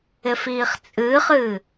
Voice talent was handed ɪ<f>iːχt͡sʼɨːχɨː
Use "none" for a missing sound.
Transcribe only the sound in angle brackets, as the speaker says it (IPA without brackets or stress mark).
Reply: f